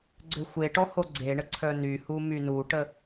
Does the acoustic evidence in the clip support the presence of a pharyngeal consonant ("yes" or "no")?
no